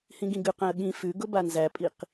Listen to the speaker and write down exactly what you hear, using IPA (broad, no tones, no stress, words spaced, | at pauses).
hĩɡĩɡʉqæ̃ə̯ ɠĩ fʉɡʊ banzæpʼiq